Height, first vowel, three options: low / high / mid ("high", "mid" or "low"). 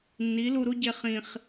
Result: high